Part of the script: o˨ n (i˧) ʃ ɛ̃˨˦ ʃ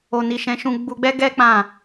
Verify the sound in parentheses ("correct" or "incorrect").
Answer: incorrect